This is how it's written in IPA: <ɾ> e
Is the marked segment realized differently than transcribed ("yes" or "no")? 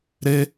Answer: no